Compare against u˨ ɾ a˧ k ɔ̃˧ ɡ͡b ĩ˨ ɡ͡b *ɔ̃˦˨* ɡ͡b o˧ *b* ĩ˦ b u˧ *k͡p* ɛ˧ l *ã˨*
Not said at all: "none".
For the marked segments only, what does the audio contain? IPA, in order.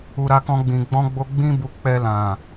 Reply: ɔ̃˧, ɡ͡b, k͡p, ã˨

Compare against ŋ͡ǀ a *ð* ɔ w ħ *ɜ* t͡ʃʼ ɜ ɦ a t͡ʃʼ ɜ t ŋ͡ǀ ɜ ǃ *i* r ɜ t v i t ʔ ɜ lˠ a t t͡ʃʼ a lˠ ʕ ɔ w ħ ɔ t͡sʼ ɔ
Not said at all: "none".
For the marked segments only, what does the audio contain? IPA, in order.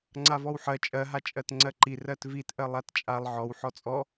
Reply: v, ɜ, i

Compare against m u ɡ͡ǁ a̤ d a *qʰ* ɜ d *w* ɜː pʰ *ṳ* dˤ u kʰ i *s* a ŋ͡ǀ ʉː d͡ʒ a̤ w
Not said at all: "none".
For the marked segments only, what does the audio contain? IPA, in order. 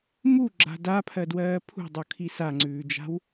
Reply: pʰ, w, ṳ, s

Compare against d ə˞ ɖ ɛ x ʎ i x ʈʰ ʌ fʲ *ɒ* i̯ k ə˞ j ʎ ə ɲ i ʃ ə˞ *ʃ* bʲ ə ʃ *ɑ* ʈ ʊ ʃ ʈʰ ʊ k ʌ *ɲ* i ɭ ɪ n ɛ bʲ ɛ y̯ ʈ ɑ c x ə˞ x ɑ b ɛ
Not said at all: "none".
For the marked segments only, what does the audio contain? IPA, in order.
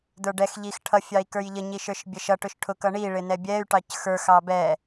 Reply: ɑ, ʃ, ʌ, ɳ

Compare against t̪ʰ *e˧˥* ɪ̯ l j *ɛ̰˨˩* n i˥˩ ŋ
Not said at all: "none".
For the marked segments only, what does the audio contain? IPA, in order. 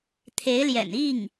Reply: e˧˥, ɛ̰˨˩

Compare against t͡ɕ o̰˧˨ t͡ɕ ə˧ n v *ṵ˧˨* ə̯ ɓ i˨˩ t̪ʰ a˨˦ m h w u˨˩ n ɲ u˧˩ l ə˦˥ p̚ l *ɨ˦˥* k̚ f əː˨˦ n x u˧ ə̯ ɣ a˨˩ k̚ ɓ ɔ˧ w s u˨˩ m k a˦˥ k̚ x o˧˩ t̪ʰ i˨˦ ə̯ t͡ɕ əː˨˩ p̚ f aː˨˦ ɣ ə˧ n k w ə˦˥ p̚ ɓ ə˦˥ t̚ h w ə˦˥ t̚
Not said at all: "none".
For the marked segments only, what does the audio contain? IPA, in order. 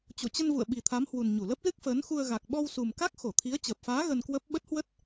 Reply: ṵ˧˨, ɨ˦˥

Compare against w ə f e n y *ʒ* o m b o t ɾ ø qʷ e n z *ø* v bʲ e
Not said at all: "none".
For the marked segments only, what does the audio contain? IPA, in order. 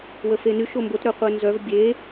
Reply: ʃ, œ

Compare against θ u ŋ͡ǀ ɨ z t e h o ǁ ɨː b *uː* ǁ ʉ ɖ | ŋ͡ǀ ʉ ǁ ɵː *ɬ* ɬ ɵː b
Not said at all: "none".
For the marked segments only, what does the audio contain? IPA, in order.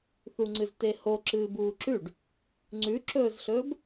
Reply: uː, z

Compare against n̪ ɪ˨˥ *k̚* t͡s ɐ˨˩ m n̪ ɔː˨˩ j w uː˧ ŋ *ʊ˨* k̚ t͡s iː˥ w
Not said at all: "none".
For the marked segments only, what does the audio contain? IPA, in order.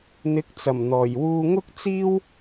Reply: k̚, ʊ˥

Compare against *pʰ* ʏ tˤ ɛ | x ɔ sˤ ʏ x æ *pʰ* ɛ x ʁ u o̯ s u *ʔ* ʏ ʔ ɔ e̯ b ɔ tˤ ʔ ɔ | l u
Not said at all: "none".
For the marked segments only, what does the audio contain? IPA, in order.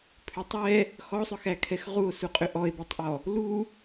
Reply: pʰ, kʰ, qʼ

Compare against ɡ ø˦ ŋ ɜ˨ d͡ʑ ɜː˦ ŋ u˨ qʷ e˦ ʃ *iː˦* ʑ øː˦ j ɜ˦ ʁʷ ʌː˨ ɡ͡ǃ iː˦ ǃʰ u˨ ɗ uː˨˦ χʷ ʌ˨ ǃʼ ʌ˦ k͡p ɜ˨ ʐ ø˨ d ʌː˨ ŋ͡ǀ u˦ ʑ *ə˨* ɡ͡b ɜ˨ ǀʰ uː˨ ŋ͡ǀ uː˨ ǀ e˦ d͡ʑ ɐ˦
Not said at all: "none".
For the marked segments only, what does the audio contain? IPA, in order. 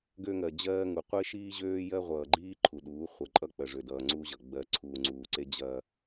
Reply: iː˦, ʌ˨

